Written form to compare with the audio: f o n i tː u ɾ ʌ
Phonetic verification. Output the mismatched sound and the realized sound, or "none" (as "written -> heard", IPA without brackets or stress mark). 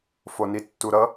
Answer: none